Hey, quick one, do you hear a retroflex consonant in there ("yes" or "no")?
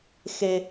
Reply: no